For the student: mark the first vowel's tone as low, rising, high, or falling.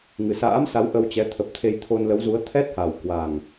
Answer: low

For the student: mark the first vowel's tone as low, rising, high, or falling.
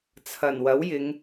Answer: low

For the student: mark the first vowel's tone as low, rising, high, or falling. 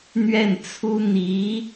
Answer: falling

